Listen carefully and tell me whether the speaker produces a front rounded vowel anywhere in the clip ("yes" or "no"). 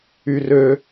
yes